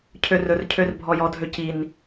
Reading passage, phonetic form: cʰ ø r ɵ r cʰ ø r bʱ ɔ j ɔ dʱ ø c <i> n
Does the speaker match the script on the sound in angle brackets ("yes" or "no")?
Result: yes